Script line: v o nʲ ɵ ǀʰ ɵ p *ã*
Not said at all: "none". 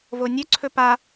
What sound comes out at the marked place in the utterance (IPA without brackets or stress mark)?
a